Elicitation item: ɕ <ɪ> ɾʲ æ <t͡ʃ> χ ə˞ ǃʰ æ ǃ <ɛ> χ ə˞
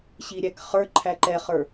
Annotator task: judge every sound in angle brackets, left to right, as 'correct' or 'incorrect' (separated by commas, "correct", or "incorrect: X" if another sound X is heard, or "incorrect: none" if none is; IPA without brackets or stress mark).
incorrect: i, incorrect: k, correct